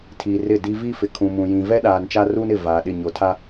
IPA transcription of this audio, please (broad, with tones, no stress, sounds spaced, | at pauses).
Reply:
tʰ iː˨ r ɪ˦˨ d i˦ v i˦ f ɪ˨ kʰ ũ˨ m ũ˨ j ĩ˨ v ɛ˦ ɗ aː˨ n t͡ʃ a˦ r uː˦ n ɪ˦˨ v aː˨ ɗ ɪ˦˨ ɲ o˨ tʰ a˦